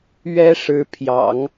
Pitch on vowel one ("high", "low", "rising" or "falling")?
high